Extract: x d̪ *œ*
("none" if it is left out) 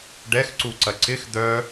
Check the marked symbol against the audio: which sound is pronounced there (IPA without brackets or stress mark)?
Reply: œ